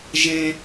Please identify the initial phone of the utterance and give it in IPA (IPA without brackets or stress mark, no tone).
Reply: ʒ